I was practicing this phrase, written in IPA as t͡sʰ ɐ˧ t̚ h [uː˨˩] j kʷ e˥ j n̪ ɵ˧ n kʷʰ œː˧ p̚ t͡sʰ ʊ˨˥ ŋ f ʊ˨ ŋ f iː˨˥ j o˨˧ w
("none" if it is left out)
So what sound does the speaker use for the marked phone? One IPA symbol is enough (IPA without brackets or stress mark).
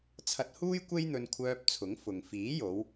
uː˥